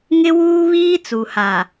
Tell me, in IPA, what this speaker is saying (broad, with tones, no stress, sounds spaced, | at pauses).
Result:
ŋ ɪ˦ w uː˦ β iː˦ t͡s u˨ h a˨